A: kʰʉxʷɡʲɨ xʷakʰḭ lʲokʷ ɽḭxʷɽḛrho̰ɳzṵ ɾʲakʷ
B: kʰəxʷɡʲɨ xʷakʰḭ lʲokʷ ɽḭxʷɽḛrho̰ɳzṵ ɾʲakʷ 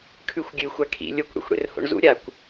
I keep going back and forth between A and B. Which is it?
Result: A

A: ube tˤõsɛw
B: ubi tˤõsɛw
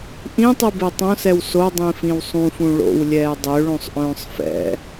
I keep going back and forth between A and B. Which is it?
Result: A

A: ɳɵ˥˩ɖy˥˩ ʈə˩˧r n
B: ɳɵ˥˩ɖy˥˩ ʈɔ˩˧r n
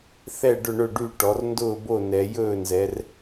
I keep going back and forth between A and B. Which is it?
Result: B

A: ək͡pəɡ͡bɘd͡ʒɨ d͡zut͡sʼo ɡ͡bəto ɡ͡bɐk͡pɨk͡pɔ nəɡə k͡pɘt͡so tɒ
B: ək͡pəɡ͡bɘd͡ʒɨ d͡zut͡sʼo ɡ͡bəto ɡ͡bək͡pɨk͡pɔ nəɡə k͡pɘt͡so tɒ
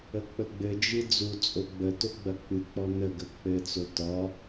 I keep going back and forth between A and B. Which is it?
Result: A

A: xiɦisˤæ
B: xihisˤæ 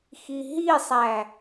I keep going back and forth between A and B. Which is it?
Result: A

